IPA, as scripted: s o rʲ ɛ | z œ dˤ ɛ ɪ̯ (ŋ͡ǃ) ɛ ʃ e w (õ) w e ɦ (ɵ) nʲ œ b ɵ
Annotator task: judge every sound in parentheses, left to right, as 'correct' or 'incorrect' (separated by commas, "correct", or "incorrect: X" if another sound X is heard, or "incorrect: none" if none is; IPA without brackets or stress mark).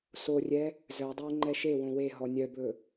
correct, correct, incorrect: ɔ